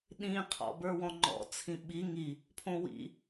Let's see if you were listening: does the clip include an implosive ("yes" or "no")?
yes